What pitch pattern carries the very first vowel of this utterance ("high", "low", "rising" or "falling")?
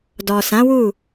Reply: low